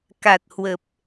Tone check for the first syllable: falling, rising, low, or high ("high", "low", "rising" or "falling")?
low